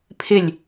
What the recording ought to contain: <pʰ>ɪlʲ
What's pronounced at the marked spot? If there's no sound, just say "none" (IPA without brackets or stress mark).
pʰ